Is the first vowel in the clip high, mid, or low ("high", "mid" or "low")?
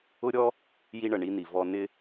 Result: high